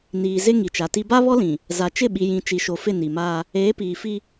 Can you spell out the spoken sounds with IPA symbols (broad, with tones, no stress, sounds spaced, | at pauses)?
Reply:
n iː˨ z ɪ˦ ŋ i˨ t͡ʃ a˨ t i˦ b a˦ β ɔ˦ l ĩ˨ | z a˨ t͡ʃ ɪ˦˨ ɓ i˨ j ĩ˨ t͡ʃ i˨ ʃ o˨ f ɪ˦˨ n i˨ m aː˦ | eː˨˦ p iː˨ f i˦